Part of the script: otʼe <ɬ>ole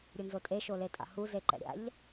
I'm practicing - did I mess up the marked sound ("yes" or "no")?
yes